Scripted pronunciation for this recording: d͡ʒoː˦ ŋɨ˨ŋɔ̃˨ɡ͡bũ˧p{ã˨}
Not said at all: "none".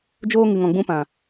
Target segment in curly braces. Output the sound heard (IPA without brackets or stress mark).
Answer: ã˨